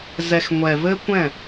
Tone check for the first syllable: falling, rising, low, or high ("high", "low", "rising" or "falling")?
low